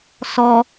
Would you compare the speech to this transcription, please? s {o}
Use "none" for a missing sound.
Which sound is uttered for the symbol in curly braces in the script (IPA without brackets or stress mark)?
ɔ